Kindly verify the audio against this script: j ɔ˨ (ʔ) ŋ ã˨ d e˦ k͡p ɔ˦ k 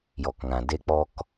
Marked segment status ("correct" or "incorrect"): incorrect